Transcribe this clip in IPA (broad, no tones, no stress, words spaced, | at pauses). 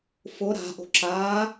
fʊ ɾa̤ʔo̤ ǁa